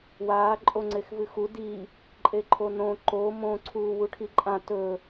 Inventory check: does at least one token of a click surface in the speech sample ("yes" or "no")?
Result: yes